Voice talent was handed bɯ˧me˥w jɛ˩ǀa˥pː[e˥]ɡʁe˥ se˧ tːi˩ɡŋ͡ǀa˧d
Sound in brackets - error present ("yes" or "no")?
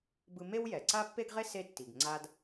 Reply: no